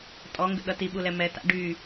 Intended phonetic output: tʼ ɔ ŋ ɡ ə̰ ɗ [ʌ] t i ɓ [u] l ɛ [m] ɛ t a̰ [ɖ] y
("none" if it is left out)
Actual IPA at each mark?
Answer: ʌ, u, m, ɖ

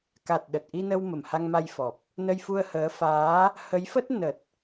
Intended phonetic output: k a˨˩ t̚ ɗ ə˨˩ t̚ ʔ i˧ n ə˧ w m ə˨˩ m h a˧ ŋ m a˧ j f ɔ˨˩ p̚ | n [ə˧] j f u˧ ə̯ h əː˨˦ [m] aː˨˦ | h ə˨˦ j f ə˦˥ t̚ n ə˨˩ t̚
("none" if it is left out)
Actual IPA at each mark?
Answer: ə˧, f

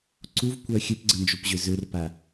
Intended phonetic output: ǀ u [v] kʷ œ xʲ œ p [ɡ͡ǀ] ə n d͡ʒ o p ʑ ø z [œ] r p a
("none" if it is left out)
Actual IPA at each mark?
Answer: v, ɡ͡ǀ, ø

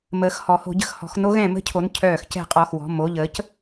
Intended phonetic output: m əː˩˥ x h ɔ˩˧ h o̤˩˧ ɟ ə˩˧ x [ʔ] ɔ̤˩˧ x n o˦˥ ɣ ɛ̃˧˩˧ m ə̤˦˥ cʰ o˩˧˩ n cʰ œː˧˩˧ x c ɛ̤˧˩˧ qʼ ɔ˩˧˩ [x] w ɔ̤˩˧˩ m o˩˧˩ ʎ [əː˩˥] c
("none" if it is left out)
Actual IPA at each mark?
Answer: h, x, əː˩˥

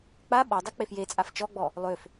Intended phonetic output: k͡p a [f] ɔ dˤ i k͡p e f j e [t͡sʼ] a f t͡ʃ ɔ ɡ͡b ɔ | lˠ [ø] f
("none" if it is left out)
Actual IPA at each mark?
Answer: ɓ, t͡sʼ, ø

